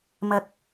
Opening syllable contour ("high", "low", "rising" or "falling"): low